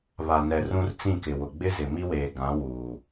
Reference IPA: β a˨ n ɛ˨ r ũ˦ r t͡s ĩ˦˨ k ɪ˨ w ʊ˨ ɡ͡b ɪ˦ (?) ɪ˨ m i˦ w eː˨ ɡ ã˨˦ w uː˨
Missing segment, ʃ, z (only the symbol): z